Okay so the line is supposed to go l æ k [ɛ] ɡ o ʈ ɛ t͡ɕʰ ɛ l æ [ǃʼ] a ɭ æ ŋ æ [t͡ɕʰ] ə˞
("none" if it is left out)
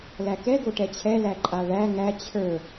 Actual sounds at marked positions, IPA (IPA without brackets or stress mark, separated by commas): ɛ, ǃʼ, t͡ɕʰ